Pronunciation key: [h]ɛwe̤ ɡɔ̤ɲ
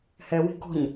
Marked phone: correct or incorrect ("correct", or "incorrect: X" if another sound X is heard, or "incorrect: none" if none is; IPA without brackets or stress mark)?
correct